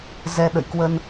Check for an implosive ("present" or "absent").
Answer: present